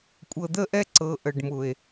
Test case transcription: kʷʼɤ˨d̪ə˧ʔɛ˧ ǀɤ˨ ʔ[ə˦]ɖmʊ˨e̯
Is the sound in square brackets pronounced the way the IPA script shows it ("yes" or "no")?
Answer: no